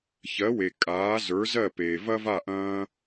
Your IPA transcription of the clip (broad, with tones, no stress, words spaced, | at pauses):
çɜ˩˥we˩ kʼaː˩˥zə˞˩˥zɜ˥˩ peː˩vɐ˥va˥˩ ʔɐ̃ː˧